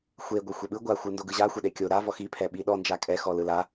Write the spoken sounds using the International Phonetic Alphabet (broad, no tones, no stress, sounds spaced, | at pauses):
xʷ e ɡʷ ɛ xʷ e ɓ ɯ ɡʷ a xʷ ɯ n d o ɡ ɯ ʑ a xʷ ɛ ɗ e kʲ o ɾ a v ɔ x i pʰ ɛ ɓ i ɗ ɔ n d͡ʒ a kʼ ɛ x ɔ l ɯ l a